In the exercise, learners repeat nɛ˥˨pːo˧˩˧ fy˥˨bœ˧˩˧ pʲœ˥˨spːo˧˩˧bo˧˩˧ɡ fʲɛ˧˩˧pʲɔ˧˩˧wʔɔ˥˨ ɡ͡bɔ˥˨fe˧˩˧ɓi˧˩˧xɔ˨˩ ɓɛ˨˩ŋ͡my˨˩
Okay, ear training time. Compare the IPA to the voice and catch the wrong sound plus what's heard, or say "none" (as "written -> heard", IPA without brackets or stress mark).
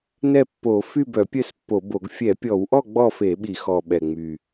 none